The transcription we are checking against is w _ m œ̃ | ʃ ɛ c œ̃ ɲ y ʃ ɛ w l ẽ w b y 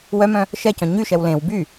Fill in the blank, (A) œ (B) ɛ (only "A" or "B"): A